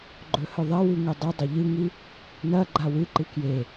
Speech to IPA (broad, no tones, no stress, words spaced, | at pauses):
ɡ͡ǃɵhɵðˤɐwʉ ŋɵdˤɨdˤɐ ʎɨŋi | nɐɡ͡ǃa wɨǃɨ kje